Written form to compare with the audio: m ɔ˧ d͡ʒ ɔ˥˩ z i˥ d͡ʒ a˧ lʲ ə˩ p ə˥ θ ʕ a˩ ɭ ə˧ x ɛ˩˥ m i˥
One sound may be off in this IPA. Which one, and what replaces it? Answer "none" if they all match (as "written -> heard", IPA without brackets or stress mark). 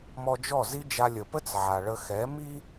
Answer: θ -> t͡s